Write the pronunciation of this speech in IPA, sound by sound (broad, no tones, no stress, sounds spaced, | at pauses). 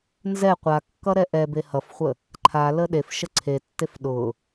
n z ɛ qʷ a kː ʌ ɾ ɛ ʔ ɛ b e h ʌ f χʷ ə | ǃʰ a l ə ɗ e f ʃ ə ǀʰ e tː e f ɗ ʊ